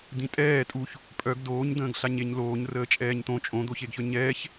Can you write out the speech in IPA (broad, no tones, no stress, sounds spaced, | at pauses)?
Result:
d̪ ĩ tʼ ɛː tʼ u ç | pʼ œ ɡ d oː ɲ d̪ ə̃ː ɡ ɬ a ɲ e ɲ l oː ɲ r əː t͡ʃʼ ɛː ɲ t̪ õ t͡ʃʼ õ d̪ o ç e ɡ ç œ ɲ ɛː ç